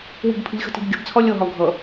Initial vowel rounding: unrounded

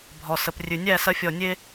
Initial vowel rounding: rounded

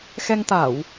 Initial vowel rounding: unrounded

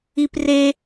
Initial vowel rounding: unrounded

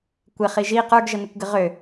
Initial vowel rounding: unrounded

